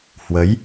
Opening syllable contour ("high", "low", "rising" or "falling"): rising